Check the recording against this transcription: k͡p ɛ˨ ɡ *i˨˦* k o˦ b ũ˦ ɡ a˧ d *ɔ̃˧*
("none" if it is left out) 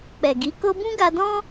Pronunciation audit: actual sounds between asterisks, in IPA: i˨˦, ɔ̃˦

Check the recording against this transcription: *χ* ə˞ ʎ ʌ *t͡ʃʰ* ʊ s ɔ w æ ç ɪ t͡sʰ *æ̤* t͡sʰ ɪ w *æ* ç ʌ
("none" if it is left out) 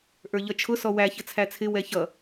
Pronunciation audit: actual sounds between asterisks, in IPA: ʔ, t͡ʃʰ, æ, ɛ

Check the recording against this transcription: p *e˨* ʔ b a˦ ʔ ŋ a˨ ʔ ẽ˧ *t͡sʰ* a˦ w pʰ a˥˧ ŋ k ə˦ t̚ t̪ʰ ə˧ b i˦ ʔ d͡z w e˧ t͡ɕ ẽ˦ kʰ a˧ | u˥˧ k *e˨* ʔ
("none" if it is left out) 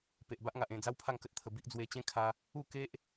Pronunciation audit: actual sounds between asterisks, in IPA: e˨, d͡z, e˦

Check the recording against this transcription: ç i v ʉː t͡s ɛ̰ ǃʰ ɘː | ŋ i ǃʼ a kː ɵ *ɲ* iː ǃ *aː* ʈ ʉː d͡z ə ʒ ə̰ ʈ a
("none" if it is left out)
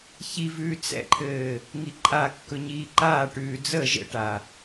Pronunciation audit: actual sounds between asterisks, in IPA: ɲ, aː

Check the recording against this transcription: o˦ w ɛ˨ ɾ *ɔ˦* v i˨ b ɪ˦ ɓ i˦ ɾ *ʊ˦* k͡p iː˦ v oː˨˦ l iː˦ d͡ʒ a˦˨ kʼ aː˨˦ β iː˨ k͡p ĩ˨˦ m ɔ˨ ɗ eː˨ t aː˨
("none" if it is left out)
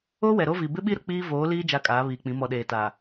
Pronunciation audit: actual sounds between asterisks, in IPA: o˦, ʊ˦

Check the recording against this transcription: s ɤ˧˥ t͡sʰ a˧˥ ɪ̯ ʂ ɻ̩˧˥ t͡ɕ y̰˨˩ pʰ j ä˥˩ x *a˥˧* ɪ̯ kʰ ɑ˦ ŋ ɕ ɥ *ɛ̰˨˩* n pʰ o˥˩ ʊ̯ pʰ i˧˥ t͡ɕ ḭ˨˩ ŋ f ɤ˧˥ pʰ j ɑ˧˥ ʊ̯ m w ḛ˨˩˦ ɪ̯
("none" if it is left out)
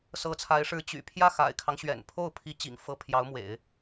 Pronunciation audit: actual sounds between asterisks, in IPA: a̰˨˩, ɛ̰˨˩

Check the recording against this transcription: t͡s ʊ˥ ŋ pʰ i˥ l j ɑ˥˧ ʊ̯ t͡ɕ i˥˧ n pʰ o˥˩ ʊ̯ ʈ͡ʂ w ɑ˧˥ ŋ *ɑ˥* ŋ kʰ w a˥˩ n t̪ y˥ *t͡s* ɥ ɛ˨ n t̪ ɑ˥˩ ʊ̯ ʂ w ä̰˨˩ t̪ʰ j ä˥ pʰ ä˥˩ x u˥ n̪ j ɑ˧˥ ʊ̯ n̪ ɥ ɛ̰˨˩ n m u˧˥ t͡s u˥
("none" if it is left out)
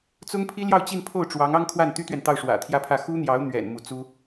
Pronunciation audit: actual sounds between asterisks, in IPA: ɑ˥, t̪

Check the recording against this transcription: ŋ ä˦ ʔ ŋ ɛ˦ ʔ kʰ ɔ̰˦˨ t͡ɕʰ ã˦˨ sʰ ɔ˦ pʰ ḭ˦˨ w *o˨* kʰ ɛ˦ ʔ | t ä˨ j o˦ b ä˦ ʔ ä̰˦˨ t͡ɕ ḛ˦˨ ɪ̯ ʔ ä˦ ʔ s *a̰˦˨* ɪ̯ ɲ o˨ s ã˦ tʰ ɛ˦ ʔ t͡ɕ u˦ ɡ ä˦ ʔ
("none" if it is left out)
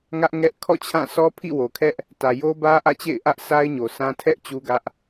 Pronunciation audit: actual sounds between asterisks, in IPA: o˨, a˦

